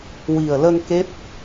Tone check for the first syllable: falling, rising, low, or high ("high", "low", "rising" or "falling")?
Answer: low